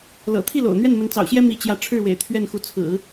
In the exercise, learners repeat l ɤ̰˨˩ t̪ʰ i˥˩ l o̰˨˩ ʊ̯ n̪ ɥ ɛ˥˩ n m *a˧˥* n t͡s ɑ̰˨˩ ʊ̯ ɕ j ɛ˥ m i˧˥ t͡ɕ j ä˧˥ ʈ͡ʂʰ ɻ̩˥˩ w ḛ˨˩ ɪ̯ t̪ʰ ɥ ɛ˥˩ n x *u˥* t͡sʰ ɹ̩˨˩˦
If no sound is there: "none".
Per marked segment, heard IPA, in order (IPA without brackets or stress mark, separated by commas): ə˧˥, u˧˥